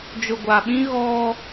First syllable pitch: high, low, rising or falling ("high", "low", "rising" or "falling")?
low